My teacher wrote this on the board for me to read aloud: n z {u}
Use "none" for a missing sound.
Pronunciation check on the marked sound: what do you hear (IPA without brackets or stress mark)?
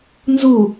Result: u